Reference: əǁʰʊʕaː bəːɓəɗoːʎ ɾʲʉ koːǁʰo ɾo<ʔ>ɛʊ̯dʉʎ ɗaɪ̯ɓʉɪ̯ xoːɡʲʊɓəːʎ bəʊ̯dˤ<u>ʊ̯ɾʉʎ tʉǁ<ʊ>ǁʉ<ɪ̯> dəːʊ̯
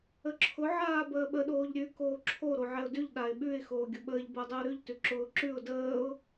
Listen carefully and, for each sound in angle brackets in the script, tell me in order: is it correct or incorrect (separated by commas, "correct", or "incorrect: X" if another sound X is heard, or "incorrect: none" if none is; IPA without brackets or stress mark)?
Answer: incorrect: ʕ, incorrect: ʉ, incorrect: ʊː, incorrect: ʊ̯